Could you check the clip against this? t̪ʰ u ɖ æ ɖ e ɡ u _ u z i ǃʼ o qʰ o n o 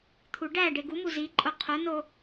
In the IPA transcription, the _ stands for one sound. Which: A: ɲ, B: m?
B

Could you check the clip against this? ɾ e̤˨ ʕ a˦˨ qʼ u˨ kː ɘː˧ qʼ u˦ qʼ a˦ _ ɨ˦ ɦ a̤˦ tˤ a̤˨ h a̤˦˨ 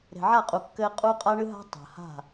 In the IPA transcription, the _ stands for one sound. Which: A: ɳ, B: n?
A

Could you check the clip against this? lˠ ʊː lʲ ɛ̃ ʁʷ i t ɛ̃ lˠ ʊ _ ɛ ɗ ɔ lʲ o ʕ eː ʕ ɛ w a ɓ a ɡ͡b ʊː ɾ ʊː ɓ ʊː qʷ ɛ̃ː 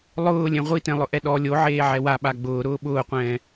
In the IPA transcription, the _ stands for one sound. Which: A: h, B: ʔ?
B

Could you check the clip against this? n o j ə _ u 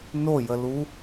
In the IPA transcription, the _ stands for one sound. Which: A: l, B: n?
A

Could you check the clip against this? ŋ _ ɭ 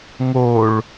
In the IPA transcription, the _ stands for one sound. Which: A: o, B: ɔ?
A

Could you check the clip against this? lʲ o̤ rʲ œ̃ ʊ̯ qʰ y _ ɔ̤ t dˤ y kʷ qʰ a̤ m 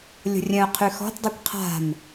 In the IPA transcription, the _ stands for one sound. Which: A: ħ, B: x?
B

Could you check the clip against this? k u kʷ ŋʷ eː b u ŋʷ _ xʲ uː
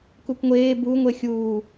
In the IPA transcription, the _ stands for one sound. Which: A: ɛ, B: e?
B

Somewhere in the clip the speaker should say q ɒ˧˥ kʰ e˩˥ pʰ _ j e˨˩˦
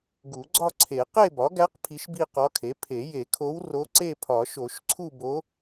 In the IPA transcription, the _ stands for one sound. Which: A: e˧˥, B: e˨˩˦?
B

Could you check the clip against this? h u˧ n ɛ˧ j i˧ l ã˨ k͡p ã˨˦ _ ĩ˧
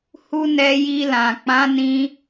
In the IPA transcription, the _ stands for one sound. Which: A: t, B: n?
B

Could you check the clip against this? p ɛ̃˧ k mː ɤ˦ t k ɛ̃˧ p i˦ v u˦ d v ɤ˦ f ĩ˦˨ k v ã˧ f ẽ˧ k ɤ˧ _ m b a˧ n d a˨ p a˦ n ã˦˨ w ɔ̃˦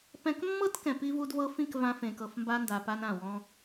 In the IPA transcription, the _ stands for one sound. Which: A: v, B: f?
B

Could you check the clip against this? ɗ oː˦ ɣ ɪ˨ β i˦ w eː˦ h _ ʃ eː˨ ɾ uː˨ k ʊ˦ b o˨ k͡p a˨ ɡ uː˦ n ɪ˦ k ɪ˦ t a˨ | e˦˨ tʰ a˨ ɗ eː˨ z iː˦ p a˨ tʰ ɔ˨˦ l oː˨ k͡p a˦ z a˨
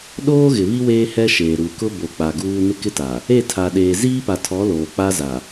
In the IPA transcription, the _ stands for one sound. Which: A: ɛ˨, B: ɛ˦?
B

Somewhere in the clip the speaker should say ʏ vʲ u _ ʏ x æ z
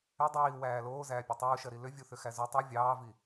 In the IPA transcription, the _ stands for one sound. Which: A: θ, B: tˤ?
A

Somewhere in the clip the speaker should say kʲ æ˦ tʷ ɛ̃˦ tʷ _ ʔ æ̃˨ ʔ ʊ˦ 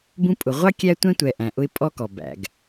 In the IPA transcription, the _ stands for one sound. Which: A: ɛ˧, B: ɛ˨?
B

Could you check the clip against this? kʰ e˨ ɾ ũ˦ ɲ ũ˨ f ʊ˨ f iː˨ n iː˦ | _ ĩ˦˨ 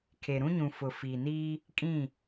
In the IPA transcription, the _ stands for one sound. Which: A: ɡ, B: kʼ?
B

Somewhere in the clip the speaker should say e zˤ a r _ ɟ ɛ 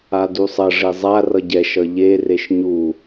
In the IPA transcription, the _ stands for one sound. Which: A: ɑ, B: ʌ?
B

